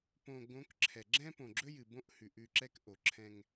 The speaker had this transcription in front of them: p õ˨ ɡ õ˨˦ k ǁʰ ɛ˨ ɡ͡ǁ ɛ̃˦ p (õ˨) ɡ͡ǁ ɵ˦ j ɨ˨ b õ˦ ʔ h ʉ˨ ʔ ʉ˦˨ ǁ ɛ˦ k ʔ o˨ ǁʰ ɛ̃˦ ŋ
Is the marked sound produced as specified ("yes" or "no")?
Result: yes